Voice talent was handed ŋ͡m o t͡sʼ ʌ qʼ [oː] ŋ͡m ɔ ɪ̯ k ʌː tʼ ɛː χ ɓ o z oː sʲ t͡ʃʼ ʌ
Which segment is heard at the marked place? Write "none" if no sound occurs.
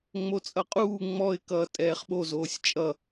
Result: uː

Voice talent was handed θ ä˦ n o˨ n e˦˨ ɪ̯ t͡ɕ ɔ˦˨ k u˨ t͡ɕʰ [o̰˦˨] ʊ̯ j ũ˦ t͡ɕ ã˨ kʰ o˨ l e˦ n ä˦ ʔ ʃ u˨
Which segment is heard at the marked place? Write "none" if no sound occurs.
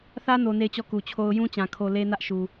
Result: o˦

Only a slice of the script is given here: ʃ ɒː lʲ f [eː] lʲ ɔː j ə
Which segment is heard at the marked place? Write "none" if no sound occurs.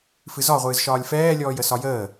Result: ɛː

